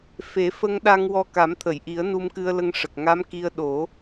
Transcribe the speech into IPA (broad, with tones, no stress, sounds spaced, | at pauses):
f e˨˩˦ f ə˧ ŋ ɗ a˧ ŋ w ɔ˧ k a˨˩˦ m t̪ʰ ə˨˩˨ j ʔ i˨˩˦ ə̯ n u˧ m k ɨ˧ ə̯ l ə˧ ŋ ʂ ə˨˩ k̚ ŋ a˧˥ m k i˧ ə̯ ɗ o˨˩˦